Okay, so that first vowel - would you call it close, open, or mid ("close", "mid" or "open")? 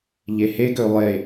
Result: mid